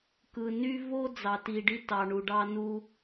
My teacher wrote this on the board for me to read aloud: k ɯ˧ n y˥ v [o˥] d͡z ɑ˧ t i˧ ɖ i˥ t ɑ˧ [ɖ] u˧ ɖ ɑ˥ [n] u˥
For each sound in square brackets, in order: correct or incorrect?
correct, incorrect, correct

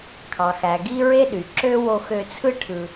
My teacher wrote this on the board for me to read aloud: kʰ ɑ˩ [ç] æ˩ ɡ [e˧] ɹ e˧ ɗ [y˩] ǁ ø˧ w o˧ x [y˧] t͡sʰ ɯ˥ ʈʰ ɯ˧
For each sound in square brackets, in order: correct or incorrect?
incorrect, incorrect, correct, incorrect

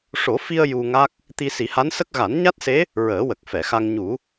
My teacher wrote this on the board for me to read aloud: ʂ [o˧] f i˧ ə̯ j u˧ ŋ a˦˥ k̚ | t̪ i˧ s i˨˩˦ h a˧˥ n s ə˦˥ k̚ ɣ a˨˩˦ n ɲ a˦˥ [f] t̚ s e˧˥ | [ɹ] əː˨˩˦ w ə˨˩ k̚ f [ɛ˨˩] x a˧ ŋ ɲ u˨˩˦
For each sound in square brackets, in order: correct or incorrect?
incorrect, incorrect, correct, incorrect

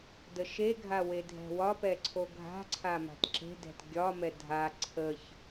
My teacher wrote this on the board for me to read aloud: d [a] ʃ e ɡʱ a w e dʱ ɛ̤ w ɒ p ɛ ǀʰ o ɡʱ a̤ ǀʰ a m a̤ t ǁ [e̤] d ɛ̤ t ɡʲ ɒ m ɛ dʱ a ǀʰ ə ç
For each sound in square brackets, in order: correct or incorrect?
incorrect, correct

